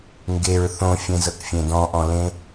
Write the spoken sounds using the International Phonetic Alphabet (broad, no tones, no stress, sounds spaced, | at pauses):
ŋ ɡ e ɹ θ õ fʲ ẽ z ɤ k fʲ ẽ d ɔ̃ ʔ ɔ̃ l ẽ